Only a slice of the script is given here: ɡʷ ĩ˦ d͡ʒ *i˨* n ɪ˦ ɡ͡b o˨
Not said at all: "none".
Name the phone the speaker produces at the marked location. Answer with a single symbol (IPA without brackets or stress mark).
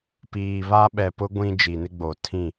i˨